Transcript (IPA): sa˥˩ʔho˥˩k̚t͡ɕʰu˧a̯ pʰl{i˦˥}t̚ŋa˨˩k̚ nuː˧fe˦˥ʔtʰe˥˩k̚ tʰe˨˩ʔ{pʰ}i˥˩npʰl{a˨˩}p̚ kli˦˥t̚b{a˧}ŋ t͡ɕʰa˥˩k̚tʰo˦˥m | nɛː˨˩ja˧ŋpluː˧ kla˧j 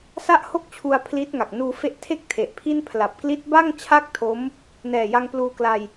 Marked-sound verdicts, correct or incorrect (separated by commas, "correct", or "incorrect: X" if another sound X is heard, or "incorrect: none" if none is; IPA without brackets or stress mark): correct, correct, correct, incorrect: a˥˩